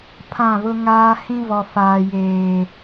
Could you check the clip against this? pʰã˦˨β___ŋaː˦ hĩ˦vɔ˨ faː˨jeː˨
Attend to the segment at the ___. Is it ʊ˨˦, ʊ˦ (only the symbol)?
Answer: ʊ˦